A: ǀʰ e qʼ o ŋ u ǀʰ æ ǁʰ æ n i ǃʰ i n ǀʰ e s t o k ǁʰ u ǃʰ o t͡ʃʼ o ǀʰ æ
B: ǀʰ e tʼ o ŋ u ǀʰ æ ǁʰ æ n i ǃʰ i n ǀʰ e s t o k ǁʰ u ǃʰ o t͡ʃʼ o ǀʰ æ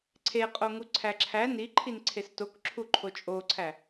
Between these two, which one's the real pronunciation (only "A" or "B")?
A